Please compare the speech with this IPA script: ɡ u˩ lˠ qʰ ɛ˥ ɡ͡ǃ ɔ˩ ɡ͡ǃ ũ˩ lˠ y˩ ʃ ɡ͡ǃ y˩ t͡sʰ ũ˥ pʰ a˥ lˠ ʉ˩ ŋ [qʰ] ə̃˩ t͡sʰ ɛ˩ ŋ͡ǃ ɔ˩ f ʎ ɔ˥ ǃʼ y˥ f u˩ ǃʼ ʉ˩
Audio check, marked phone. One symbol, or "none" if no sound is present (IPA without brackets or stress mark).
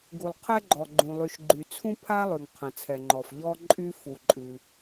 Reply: qʰ